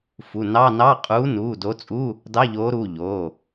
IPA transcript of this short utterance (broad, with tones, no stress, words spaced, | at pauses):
fu˩˧˩nɑ˧˥˧nɑ˧˥˧ qʼuː˨˥nuː˩˧˩do˨˥t͡sʼu˧˥˧ | dɑ˧˥˧ʎoː˨˥ɾuː˩˧˩ ʎo˩˧˩